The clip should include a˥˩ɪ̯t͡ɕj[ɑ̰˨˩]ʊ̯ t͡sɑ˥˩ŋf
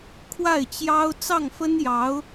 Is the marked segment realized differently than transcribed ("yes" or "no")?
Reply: yes